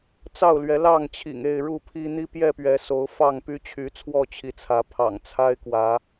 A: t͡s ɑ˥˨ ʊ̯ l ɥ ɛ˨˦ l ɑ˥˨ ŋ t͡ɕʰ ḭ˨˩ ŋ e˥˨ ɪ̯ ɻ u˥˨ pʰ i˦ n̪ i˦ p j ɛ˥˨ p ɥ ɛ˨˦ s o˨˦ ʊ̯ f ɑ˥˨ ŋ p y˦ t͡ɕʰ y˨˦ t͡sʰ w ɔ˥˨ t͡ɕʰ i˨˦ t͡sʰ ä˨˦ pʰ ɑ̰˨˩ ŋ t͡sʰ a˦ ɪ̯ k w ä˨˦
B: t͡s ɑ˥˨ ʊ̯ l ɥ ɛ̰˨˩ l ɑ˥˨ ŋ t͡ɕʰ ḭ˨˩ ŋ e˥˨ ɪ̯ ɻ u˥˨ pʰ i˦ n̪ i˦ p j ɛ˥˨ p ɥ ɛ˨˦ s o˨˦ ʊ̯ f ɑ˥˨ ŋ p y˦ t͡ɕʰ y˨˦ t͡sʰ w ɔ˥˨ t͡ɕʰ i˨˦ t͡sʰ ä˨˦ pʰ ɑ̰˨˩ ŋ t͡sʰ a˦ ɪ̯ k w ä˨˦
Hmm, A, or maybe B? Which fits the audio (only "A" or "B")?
A